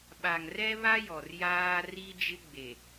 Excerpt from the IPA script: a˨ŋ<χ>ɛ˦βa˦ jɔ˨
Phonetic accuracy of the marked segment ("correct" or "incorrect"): incorrect